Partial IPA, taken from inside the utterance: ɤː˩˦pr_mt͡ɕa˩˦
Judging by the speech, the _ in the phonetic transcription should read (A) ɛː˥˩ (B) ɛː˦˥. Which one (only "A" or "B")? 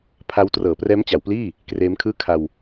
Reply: B